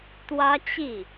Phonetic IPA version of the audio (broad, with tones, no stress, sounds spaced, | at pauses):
t̪ w ä˥ t͡ɕ i˥˩